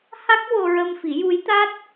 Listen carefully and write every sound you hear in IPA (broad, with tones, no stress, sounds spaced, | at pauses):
h a˦˥ k̚ w o˧ ɹ ə˧ m f i˨˩˦ j u˧˥ j t̪ a˦˥ t̚